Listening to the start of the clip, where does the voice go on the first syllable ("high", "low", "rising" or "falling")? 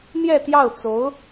falling